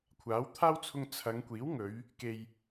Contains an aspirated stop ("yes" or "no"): yes